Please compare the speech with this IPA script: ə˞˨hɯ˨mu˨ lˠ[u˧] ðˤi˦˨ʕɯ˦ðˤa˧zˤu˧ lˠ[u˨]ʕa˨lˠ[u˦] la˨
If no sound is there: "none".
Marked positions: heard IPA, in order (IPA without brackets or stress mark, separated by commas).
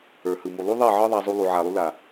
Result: u˧, u˨, u˧